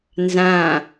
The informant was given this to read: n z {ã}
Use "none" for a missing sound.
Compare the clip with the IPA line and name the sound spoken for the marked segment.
ã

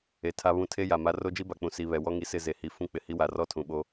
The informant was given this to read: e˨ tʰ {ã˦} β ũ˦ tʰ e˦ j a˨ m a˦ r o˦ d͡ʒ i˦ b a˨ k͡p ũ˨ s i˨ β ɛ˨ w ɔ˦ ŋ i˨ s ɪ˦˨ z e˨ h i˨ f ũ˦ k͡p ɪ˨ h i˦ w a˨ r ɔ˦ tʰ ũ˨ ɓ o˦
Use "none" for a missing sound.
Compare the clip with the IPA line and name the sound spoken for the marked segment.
a˦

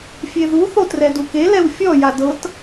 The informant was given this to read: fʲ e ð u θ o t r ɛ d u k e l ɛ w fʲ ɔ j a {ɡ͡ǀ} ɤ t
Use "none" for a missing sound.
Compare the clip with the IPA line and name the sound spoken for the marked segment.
d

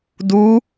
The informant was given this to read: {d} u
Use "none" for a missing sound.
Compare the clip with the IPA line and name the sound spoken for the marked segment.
d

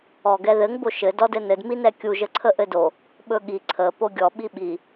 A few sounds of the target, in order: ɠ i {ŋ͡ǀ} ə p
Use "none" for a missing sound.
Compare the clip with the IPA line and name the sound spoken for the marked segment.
ǀʰ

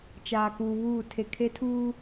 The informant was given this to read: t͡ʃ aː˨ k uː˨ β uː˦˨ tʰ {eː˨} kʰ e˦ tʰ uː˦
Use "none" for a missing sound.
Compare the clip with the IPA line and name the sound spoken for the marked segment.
e˨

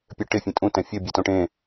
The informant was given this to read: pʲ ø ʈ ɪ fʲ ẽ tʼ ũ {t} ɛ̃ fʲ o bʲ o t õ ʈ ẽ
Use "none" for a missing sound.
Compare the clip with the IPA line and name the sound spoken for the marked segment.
t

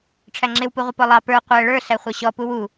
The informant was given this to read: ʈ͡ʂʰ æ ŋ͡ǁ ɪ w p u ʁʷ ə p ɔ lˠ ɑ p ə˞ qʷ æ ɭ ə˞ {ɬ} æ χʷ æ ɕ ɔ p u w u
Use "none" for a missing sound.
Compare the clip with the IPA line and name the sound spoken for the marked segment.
ɬ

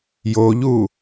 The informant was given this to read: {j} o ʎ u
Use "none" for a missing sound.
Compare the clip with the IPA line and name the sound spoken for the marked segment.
j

